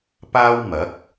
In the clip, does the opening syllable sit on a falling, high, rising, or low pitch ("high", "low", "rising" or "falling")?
high